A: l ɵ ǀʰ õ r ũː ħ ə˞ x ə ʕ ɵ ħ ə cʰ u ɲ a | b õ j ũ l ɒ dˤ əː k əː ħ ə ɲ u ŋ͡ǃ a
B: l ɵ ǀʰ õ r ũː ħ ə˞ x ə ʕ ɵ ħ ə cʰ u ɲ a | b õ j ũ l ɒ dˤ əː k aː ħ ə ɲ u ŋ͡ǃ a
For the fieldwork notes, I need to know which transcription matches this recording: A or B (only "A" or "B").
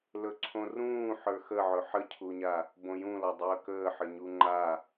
A